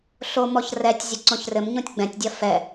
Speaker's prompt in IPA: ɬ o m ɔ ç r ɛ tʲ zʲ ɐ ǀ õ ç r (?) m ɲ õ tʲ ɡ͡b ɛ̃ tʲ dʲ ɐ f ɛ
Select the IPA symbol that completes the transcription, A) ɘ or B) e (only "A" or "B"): A